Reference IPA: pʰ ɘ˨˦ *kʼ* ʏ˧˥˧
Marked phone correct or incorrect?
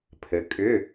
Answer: correct